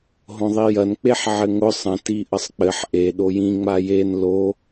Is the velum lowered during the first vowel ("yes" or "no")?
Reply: yes